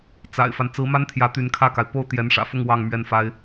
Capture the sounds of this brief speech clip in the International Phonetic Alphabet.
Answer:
t͡s a̰˨˩ ɪ̯ f a˦ n t͡s ɹ̩˧˥ m a˥ n t̪ʰ j ä˧˥ t̪ y˧˥ n kʰ ä˥˩ k a˩ ɪ̯ p o˥˩ ʊ̯ t̪ j ɛ˧˥ n ʂ ä̰˨˩ f ʊ˥˧ ŋ w ɑ˥˧ ŋ m ɥ ɛ˥˩ n f a˥ ɪ̯

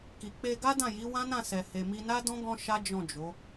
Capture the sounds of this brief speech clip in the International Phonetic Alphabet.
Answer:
k i˨ k͡p e˧ ɡ a˦ d ã˦˨ j i˨˦ w ã˦ n ã˦˨ s ɛ˨ h e˨ m i˧ n a˦ d ɔ̃˦ ɡ ɔ̃˦ ʃ a˦ d͡ʒ ɔ̃˦˨ d͡ʒ o˨˦

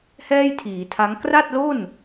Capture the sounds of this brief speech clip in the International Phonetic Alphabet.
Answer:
h ɛː˥˩ j tʰ iː˩˦ tʰ a˦˥ ŋ k r a˥˩ t̚ l o˥˩ n

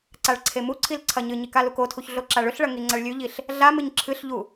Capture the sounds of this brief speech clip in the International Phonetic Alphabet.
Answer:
ǀ a ɭ ǀʰ e m u ǀʰ i l ǀʰ ɐ ɲ ɨ ɲ i k a l u k o tʰ u ç ɮ o ǁ a ɭ ɵ ɬ ɭ ɐ ŋ i ŋ͡ǀ ɐ ɭ lʲ ʉ ʎ i ɬ | ɮ a m ɨ ɲ ǁʰ ɨ ɬ ʎ u

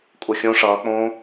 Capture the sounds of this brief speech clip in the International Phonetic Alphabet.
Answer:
kʼ u xʲ õ ʂ ʌː k͡p õː

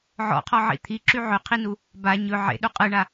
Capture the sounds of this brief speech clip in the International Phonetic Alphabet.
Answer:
ʕ ɔ̰ qʰ ɔ ʕ ḭ t̪ʰ i ǁ y ʕ ɵ qʰ i n u | b a ɲ ɵ ʕ ḛ ɗ u qʼ ɯ ɳ a

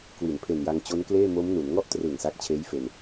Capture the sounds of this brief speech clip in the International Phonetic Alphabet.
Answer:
k w i˩˦ n pʰ e˨˩ n j a˧ ŋ t͡ɕ o˦˥ n k l eː˥˩ m o˦˥ m n u˩˦ n ŋ ɔ˥˩ ʔ t r ɯ˨˩ ŋ s a˦˥ k̚ t͡ɕʰ eː˦˥ j f e˧ n

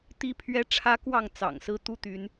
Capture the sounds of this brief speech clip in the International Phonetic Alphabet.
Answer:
t̪ i˦ pʰ ɥ ɛ˦ ʈ͡ʂʰ ä˦ k w ɑ˥˨ ŋ t͡s ɑ̰˨˩ ŋ s ɹ̩˦ t̪ u˦ t̪ y˨˦ n

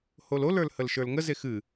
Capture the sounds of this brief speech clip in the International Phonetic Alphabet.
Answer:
h o l o l ə˞ l h ə l ʃ ə˞ l ŋ ə z e x ɨ

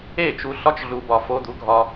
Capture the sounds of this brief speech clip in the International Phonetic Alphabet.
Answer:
e˦˨ t͡ʃ u˧ ɬ ɒ˧ t͡ʃ ɮ u˨ b ɒ˨ f o˧ d̪ u˨˦ ɡʱ ɒ˧

